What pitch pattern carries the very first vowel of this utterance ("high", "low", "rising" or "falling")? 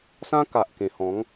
high